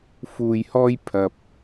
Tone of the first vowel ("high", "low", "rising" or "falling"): low